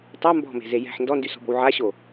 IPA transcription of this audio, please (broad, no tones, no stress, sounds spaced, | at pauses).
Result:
tˤ a m b ɔ̤ m e̤ z e j ɛ̤ ħ n d ɔ n d y s ɔ̤ b ɔ̤ w ʕ a ɕ o